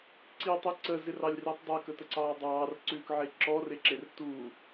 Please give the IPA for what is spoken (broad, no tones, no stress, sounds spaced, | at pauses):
ǀ i tˤ e ǀ ə z ɪ r ɑ lʲ r i tˤ dˤ ɛ k ə t ə ǀ ɑː dˤ ɑː r ǀ ʉː k ʕ e ǁ ɔ r e ǁ e r t u